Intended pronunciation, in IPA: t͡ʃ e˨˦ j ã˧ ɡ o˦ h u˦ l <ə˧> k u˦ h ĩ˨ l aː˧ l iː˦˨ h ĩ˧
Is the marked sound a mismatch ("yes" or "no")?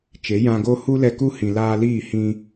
yes